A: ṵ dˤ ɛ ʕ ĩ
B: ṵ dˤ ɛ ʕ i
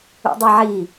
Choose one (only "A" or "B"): B